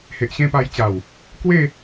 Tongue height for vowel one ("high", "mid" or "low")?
mid